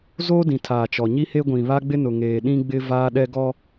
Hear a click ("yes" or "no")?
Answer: no